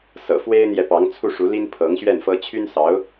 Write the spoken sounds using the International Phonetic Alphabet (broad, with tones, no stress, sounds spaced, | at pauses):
s ɤ̰˨˩ f w e˥ ɪ̯ n̪ j ɛ˨ p ɑ˧˥ ŋ t͡sʰ u˥˩ ʂ u˧˥ l i˥ n pʰ ɤ˧˥ ŋ ɕ ɥ ɛ˥˩ n f ɤ˥ t͡ɕʰ y˥ n s ɑ˧˥ ʊ̯